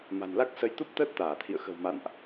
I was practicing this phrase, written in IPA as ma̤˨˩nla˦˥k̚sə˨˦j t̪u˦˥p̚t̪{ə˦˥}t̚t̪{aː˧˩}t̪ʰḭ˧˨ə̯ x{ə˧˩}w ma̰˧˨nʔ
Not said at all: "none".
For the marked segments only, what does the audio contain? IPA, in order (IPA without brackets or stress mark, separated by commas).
əː˦˥, aː˧˩, ə̤˨˩